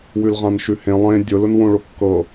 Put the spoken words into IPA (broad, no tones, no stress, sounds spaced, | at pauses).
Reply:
w ʉ l ʁ ã n ʃ ʉ h ẽ lˠ ẽ dʲ ʊ l ʊ n w õ ɭ o kː ɤ